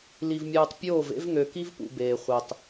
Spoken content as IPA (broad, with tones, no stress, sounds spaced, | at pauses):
l i˨ v mʲ ɯː˨ tˤ pʲ oː˦˨ v ḛ˦ v ŋ ø˨ k i˦ v p ṵ˨ b eː˨ χʷ e˨ tˤ